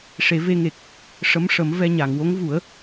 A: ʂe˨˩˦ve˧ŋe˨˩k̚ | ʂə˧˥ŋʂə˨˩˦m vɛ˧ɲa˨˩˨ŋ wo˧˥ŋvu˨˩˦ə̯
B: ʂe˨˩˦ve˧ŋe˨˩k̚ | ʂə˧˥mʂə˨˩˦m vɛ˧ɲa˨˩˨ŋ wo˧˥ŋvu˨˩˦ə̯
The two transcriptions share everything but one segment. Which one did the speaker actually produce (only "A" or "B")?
B